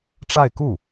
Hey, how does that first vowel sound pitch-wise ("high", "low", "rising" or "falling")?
falling